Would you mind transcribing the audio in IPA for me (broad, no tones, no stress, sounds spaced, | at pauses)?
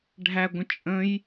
ɖʱ æ ɡʷ ə̃ t͡ʃʼ ə̃ j